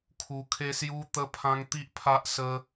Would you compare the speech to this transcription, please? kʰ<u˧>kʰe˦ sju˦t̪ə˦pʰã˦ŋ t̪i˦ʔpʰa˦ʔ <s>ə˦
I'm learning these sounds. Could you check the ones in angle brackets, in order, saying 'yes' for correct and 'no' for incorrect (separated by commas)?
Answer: yes, yes